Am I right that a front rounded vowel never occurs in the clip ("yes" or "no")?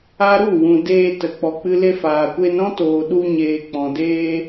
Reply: yes